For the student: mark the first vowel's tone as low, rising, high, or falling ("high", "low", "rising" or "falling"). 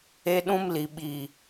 high